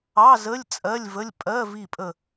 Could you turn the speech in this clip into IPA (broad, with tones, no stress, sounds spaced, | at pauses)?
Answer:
ɑ˧˥˧ z ə˧˥˧ lʲ t͡sʼ ɜ˧˥˧ lʲ v ə˧˥˧ lʲ pʼ ɜ˧˥˧ v i˦˨ pʼ ə˦˨